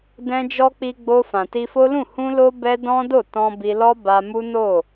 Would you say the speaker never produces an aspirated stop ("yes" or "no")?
yes